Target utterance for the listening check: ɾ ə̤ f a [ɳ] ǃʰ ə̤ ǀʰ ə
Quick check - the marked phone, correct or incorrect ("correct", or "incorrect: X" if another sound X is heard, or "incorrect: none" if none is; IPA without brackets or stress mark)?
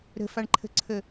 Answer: correct